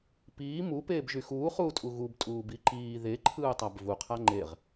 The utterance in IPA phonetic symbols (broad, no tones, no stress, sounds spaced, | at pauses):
p iː m u p eː b ʒ y x uː χ uː tʼ u ɣ u b tʼ uː b i ǃ iː ð e ǃʰ ɯː tˤ a b v u qʰ a ŋ͡ǃ e ʁ